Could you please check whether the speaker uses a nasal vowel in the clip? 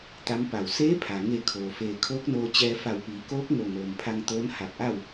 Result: no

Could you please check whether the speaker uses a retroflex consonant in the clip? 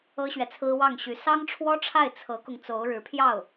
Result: yes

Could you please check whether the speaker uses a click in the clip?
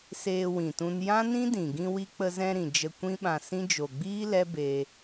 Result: no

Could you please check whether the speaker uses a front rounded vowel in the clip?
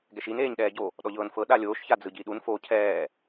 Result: no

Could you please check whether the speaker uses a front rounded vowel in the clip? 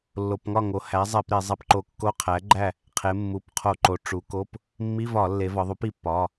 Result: no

